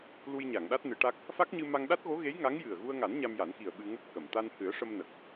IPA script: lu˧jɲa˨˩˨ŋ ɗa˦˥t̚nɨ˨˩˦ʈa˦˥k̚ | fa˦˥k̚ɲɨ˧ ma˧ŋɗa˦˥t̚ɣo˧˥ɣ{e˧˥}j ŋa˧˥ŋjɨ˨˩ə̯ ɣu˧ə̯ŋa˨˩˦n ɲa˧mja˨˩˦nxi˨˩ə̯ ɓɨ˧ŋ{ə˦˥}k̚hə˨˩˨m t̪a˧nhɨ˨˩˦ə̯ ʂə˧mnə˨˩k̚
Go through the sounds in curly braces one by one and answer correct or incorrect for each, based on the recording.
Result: correct, correct

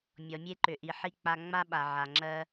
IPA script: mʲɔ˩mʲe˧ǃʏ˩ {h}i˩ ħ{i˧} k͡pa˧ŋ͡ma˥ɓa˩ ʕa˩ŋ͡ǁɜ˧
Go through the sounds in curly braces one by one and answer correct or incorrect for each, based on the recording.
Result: incorrect: ʔ, correct

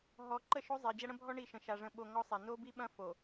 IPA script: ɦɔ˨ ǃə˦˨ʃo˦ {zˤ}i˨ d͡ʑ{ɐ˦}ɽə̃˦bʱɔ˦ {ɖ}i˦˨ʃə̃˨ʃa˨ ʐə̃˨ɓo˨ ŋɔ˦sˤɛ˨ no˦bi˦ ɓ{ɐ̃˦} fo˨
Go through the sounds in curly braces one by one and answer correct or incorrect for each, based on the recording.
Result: correct, correct, incorrect: ɳ, correct

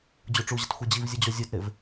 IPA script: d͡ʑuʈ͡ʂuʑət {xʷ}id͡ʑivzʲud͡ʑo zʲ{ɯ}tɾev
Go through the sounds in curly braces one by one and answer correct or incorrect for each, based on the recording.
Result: correct, incorrect: u

